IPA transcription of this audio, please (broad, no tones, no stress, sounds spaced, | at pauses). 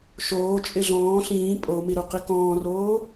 ʃ oː t͡ʃʼ ɪ ɮ ɔ̃ː ɬ ĩː pʼ o m i ɾ u q i k ɔ̃ː r oː